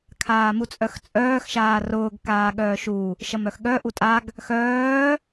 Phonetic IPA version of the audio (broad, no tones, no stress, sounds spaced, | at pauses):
kʰ aː m u t͡sʼ œ x t͡sʼ œː x ʃ aː r ʊː ɡ k aː ɠ œː ʃ u | ʃ ɐ m œ x ɠ œ ʔ u tʼ a ɡ | x œː